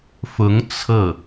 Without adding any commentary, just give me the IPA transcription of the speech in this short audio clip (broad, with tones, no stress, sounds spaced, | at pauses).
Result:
f ʊ˧˥ ŋ t͡sʰ ɤ˥˩